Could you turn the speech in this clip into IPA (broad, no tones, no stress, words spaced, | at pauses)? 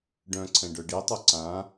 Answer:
ɖœ̃ǀʰɛ̃ ɖœɖitˤo ǀã